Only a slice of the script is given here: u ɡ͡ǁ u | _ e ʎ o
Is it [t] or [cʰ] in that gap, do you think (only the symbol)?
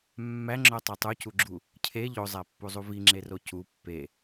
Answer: cʰ